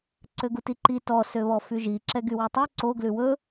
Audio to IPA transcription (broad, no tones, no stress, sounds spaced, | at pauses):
ǀ ø ɡ u t i ǃ i t ɔ s ø β ɔ f y ʒ i ǁ ɛ ɡ y w ʉ tˤ ʉ ǀ o ɡ l ʉ w ɵ